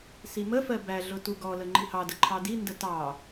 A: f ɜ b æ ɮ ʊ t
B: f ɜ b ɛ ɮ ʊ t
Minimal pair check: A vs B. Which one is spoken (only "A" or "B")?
A